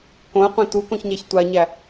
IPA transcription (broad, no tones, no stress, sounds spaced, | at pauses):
k õ ə̯ qʷ ĩ t u k õ ç ɲ æ ç tʷ a ɲ æ